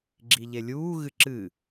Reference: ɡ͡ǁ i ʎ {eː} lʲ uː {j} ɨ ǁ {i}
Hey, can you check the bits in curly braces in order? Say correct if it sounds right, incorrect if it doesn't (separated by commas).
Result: incorrect, incorrect, incorrect